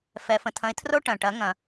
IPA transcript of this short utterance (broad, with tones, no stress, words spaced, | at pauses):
fɛ˨fə̃˨tʰɐ̃˨˥ɪ̯tʰro˥˧ ʈɐ̃˨ʈɐ˨˥ŋɐ̃˨